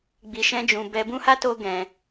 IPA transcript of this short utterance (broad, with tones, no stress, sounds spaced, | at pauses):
ɡ͡b i˧ ʃ ɛ̃˦ d͡ʒ ũ˧ b ɛ˧ b ũ˦ h a˦ t o˧ ɡ ɛ̃˧